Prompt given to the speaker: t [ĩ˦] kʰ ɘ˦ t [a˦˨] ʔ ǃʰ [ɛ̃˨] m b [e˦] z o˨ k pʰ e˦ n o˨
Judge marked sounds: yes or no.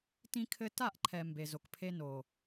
yes, yes, no, no

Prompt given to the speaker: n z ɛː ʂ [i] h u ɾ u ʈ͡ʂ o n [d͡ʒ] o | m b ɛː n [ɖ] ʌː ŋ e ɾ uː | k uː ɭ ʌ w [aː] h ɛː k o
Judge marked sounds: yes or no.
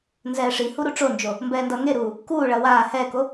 yes, yes, no, yes

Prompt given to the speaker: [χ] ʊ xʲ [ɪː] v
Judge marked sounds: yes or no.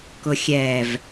no, no

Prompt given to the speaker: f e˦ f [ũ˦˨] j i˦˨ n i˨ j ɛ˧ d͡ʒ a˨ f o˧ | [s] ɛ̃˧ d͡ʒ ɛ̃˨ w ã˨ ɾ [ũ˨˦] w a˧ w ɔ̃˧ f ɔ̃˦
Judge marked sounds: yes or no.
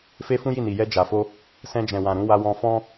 no, yes, yes

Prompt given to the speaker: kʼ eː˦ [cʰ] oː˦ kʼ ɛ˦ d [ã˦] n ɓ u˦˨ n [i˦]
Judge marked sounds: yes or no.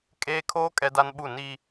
no, no, yes

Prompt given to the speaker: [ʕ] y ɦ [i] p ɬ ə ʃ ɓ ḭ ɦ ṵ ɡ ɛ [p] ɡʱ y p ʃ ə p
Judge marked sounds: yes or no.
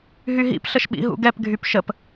no, no, yes

